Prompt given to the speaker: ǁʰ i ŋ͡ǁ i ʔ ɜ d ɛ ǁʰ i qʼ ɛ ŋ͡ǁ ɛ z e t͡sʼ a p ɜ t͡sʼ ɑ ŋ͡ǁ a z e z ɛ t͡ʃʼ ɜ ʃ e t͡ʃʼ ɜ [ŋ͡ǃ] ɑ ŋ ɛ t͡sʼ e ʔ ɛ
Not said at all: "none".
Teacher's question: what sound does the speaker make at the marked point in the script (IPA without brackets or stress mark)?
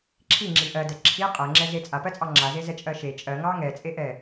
ŋ